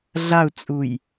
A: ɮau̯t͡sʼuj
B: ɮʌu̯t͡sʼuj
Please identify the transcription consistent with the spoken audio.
A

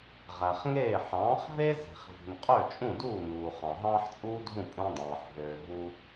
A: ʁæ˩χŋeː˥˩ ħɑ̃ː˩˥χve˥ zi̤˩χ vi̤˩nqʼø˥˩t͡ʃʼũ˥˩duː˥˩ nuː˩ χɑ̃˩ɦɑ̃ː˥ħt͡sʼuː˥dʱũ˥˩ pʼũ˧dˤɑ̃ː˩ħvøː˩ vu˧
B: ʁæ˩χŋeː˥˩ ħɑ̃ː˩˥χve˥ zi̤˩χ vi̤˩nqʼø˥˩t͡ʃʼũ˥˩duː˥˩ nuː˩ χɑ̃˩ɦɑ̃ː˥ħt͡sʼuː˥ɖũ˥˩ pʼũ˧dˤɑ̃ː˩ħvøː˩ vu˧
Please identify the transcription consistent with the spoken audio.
A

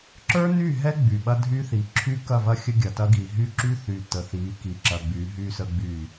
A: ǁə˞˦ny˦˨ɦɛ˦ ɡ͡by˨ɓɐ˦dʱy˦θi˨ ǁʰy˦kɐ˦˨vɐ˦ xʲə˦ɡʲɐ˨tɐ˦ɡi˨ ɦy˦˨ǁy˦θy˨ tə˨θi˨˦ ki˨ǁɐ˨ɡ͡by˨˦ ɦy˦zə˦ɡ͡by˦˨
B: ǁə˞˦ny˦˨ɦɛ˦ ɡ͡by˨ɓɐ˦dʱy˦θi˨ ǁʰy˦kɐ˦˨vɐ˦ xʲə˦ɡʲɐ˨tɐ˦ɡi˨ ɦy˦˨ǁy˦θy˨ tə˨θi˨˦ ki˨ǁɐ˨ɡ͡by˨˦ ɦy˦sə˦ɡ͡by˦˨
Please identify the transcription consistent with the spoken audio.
B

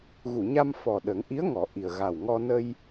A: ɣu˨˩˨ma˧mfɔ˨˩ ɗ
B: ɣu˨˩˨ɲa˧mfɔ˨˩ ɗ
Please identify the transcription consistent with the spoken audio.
B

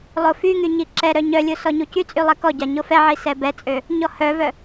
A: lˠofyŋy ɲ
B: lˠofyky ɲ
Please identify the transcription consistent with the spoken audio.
A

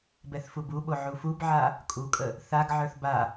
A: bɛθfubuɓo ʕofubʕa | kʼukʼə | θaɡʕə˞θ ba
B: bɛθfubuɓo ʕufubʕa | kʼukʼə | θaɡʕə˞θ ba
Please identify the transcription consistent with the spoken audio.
B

